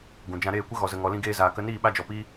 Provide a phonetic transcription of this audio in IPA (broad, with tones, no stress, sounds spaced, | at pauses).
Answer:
ɡ ũ˨ d͡ʒ ã˧ ɾ eː˦˨ kʷ ə˦ ɣ ɔ˨ z ə˨ ŋ ɔ˨ l ĩ˧ ɡ eː˧ z aː˨ k ə˧ n iː˦˨ ɓ a˦ d͡ʒ ɔ˧ p iː˦